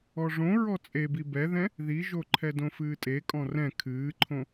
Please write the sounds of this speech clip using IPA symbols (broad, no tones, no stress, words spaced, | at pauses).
ɔʐõ ɹɔt͡sʼebi bɛðɛ̃ | ðiʒo ǃʰɛdõfɨːtʼe kʼɔ̃rɛ̃ kʰɨːǃʰõ